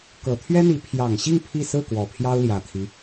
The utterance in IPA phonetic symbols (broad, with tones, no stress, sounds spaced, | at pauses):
k ɤ˨˩ t̪ʰ ɥ ɛ˥ n̪ i˧˥ pʰ j ɑ˨˩ ŋ ɕ i˥˧ ŋ pʰ i˥˧ s ɹ̩˥˩ k w ɔ˨˩ pʰ j ɑ˥ ʊ̯ l j ä˨˩ t̪ʰ i˦